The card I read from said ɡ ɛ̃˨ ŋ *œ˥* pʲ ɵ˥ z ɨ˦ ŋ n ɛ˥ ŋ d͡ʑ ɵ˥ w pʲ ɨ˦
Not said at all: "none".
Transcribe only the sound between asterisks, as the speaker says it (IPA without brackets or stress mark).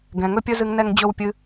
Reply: ɵ˥